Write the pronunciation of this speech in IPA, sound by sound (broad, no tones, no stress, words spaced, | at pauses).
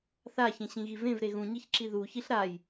θaçẽɕĩɣi vẽvɾe ɣũɲiçǁi ðu çiɬɾaj